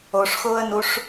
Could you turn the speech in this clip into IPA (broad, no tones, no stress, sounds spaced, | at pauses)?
o ʂ x ʊː ə̯ n u ʂ